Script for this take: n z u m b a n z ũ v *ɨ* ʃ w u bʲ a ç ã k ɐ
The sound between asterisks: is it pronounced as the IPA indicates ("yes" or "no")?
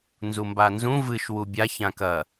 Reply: yes